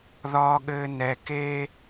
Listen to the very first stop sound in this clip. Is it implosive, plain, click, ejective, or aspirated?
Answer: implosive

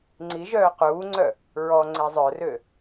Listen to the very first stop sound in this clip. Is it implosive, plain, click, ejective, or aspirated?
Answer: click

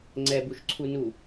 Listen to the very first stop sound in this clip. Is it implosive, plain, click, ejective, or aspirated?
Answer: click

